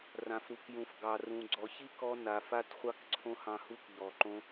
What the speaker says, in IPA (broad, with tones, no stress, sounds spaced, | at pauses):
r ã˨ f ɾ u˨ k j ũ˨ f ɡ ɑ˨ r ũ˨ ɡ͡ǀ ɔ˨ ç i˦ k ɔ˧ n a˨ f a˦ t χʷ ɑ˦ k ǀʰ õ˦ h ɑ̃˧ h u˦ k ʎ ɔ˨ ǃ õ˦